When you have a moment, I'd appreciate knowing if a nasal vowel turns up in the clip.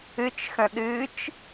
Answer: yes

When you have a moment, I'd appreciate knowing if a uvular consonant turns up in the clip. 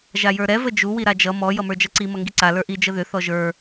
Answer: no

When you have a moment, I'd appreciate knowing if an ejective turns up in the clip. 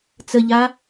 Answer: no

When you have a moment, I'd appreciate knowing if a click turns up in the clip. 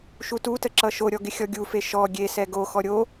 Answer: yes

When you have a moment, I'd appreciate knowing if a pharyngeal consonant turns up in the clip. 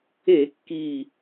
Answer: no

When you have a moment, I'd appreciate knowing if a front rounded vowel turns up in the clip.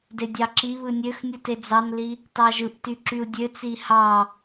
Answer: yes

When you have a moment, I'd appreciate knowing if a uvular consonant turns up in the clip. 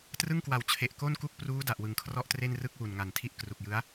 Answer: no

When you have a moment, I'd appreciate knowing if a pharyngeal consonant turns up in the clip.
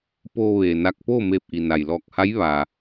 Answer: no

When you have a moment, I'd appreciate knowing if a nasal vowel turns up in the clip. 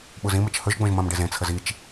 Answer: yes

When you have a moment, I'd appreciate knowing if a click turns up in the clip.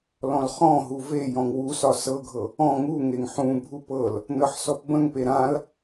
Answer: no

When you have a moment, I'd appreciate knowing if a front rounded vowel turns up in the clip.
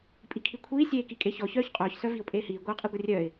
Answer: yes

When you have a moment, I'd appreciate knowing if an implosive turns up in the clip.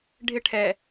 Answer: no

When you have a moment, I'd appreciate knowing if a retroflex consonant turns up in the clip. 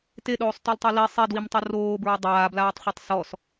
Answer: no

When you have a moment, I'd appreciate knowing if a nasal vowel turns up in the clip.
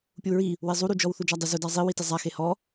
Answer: no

